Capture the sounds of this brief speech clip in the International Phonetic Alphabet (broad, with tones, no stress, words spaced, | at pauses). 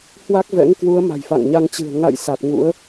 hwa˦˥k̚vɛ̰˧˥ŋkwu˨˦ə̯ ma̤˨˩jfa̰˧˨ŋɲa˧ŋt͡ɕɨ̤˨˩ə̯ ŋa̰˧˨j sa˨˩t̚ŋṵ˧˥ə̯